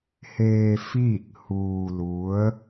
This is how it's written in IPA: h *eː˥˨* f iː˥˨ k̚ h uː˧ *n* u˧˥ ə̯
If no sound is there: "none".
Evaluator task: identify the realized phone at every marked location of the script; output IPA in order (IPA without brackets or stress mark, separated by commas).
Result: eː˧, l